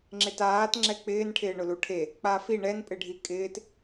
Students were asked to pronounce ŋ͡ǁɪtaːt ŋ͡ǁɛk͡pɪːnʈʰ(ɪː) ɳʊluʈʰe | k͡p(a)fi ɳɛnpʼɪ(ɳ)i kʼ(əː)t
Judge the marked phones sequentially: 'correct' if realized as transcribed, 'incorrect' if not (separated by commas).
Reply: correct, correct, incorrect, incorrect